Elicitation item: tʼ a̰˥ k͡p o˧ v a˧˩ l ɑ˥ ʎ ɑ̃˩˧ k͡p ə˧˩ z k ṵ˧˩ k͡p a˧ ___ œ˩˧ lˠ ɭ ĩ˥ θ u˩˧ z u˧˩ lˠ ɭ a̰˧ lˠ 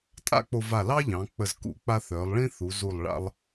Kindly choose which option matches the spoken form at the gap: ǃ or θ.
θ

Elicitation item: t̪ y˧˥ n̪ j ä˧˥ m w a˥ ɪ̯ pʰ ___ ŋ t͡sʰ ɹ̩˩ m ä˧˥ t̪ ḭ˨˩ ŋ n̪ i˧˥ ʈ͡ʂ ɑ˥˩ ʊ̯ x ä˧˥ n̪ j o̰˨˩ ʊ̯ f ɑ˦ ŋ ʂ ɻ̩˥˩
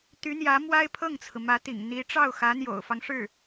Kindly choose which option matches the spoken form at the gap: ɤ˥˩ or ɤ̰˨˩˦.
ɤ˥˩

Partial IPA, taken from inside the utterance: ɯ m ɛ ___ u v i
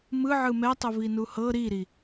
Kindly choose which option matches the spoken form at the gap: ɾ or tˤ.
tˤ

